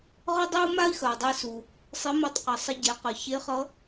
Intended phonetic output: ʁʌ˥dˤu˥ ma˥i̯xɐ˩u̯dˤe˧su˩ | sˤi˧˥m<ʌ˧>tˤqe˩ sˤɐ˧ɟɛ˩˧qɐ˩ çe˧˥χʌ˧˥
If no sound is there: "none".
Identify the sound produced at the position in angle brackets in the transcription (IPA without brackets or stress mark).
ʌ˧